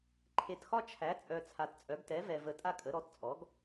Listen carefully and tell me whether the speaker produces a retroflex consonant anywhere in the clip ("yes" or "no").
no